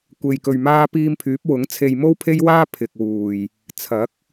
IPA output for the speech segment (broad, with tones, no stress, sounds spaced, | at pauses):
kʷ e˧ j k ɵ˧ ɥ m aː˥ p iː˧ m pʰ yː˨˥ p̚ w ʊ˨˥ ŋ t͡sʰ e˧ j m o˥ w pʰ e˥ j w aː˥ pʰ ɪ˨ k̚ w uː˨˩ j | t͡sʰ ɐ˨˥ k̚